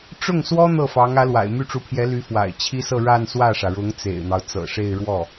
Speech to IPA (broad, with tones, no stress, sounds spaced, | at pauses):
ʈ͡ʂ ʊ˥˩ ŋ s w ɔ˥ n̪ ɤ˥˩ f ɑ˧˥ ŋ ä˧˥ l w a̰˨˩ ɪ̯ m y˥˩ ʈ͡ʂ u˧˥ pʰ j ɛ˧˥ l y˧˥ f w a̰˨˩ ɪ̯ t͡ɕʰ i˥ s ɤ˥˧ ɻ a˥˧ n s w ä˥˩ ʂ ä˩ ɻ ʊ˧˥ ŋ t͡s ḛ˨˩ ɪ̯ n̪ ɑ˦ ʊ̯ t͡s ɤ̰˨˩ ʂ e˥˧ ɪ̯ ɻ w ɔ˥˩